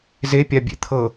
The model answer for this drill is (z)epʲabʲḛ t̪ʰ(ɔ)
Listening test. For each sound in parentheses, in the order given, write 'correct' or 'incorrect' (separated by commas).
correct, incorrect